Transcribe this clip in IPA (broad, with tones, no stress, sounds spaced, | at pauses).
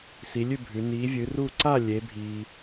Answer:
s i˨˦ lʲ ʉ˥˨ bʱ ʉ˨˦ n iː˨˦ vʲ ɨ˨˦ r u˥˨ ǀ a˥˨ lʲ e˨˦ bʱ iː˦